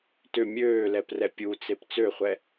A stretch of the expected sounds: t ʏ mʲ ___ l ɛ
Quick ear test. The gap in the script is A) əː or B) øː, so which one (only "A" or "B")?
B